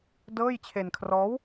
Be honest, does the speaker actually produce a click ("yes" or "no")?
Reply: no